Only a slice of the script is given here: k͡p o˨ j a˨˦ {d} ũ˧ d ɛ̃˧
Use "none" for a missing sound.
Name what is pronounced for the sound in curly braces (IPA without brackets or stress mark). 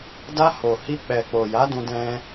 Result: d